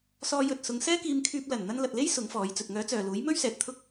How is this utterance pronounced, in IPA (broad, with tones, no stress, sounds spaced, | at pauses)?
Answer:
s ɔː˧ j ɵ˨ t̚ s ʊ˨˧ ŋ s ɛː˥ k iː˧ m kʰ yː˧ p̚ l ɐ˨˩ n n̪ ɐ˧ n l ɐ˨ t̚ l e˥ j s ʊ˨˥ ŋ f ɔː˨˧ j t͡s ɵ˨ t̚ ŋ œː˨˥ t͡s œː˨ l uː˨˥ j m ɵ˥ ɥ s ɛː˨ t̚ t̪ʰ ʊ˥ k̚